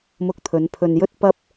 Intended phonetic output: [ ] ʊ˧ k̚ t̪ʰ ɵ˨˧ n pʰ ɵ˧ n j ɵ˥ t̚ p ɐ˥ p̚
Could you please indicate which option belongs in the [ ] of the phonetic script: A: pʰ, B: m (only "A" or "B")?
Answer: B